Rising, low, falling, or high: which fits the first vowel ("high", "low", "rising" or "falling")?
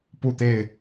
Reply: falling